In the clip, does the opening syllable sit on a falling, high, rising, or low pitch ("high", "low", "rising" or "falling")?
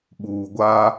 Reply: low